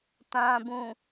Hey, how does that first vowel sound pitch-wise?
low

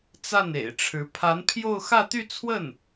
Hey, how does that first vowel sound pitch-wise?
falling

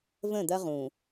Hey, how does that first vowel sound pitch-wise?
falling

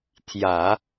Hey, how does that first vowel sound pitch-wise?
low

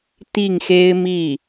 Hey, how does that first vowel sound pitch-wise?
falling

